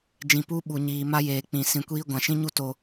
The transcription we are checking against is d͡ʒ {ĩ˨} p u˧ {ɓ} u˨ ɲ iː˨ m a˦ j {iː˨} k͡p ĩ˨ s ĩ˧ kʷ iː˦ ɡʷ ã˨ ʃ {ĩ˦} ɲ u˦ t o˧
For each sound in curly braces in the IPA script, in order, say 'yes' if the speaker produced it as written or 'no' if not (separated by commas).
yes, yes, no, yes